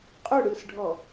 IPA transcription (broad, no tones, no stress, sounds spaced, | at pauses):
qʼ ɵ ɽ ɯ s ɖʱ ɔ